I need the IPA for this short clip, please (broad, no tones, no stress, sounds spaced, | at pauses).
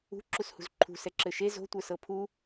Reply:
ṳ ǁ u s h ṳ z ǃʰ ṳ s ɛ ǁ ɘ ʃ e z o̤ tʷ ə˞ s ɤ pʰ u